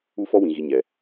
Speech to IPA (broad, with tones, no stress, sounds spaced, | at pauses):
u˦ f ɔ˦ w ĩ˨ ɣ i˨ ɲ ɛ˨